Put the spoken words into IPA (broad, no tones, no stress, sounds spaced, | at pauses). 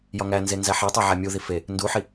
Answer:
j ɒ ŋ æ n z e n z æ ħ e tˤ æ ʕ æ mʲ u ð i f e | n d u ħ i